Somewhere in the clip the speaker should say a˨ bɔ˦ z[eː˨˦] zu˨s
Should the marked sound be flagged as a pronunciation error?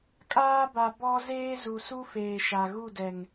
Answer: yes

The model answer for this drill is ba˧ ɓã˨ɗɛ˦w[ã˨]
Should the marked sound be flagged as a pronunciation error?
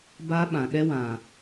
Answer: no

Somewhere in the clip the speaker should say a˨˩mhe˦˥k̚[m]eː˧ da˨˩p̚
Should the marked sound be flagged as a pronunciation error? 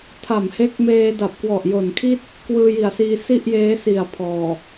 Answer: no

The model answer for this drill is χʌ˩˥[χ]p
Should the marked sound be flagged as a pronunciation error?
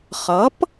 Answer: yes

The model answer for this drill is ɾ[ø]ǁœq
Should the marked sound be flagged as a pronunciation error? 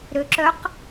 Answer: no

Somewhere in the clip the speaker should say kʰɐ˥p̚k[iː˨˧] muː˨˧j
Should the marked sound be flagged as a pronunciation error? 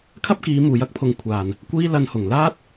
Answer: no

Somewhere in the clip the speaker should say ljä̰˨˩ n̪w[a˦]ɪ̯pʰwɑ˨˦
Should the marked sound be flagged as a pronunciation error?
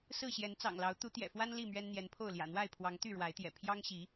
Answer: yes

